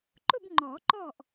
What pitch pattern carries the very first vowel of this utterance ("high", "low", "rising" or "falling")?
falling